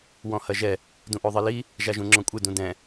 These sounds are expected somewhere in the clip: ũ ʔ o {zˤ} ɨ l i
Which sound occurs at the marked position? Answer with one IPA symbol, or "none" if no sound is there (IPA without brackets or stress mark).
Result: ðˤ